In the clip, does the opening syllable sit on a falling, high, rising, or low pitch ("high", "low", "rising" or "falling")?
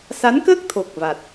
rising